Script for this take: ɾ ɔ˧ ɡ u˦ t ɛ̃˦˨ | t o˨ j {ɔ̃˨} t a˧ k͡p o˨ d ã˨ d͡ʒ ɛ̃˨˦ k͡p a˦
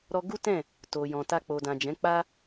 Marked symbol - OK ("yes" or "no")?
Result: yes